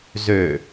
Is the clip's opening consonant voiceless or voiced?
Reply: voiced